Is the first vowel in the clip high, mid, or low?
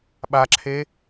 low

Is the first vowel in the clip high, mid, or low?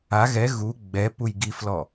low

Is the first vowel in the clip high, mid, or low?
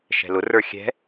mid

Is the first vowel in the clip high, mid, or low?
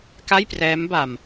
low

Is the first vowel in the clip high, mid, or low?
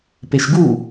mid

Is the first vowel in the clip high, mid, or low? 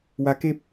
low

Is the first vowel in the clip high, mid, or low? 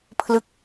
high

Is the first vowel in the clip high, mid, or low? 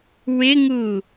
high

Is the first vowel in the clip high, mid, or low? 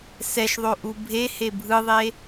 mid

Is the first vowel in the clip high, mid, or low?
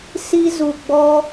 high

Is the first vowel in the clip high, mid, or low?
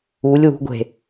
high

